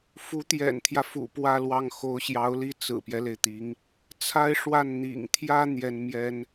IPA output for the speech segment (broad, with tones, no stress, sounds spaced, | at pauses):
f u˧˥ t̪ j ɛ̰˨˩ n t̪ʰ j ä˦ f ṵ˨˩ p w ä˥˧ l w ɑ˥˩ ŋ x o˧˥ ʊ̯ ɕ j ɑ˧˥ ʊ̯ l i˥˩ t͡s ɹ̩˨˩ p j ɛ˦ l e˩ ɪ̯ t̪ i˧˥ ŋ | t͡sʰ a˥ ɪ̯ ʂ w a˥˩ n n̪ ḭ˨˩ ŋ t̪ʰ j ä˥ n̪ j ɛ˥ n m j ɛ˥ n